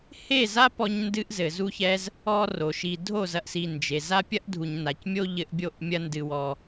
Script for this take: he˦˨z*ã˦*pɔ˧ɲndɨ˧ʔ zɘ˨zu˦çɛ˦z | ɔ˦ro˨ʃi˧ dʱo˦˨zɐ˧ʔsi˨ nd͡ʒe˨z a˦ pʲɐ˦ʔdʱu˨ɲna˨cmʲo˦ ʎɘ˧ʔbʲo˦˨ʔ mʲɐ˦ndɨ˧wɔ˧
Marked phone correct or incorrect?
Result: incorrect